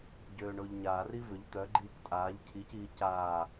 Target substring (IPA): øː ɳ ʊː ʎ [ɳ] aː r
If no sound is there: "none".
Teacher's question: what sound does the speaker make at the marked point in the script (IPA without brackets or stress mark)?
ɲ